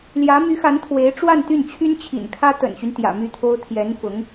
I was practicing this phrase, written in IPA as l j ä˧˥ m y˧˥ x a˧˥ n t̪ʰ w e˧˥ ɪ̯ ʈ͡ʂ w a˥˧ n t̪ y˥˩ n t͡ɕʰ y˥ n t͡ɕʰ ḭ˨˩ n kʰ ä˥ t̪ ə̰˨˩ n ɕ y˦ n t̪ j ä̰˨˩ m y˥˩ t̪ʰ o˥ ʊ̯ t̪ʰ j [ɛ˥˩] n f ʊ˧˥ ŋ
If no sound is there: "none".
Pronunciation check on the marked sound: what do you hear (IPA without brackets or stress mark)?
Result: ɛ˧˥